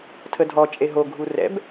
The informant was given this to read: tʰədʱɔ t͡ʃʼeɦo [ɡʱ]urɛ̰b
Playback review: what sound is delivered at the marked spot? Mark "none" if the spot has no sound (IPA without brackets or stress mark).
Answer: ɡʱ